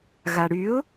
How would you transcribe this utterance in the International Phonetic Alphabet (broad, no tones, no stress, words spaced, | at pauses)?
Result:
ɣaɽyʊ̯